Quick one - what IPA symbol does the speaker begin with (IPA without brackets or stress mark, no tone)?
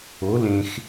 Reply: o